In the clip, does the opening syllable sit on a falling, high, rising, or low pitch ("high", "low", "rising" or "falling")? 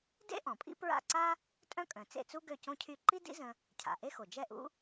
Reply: high